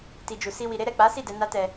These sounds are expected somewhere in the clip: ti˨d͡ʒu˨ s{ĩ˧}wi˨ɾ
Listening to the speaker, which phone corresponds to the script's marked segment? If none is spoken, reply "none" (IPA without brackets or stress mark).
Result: i˧